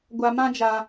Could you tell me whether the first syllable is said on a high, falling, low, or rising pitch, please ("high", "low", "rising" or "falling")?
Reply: low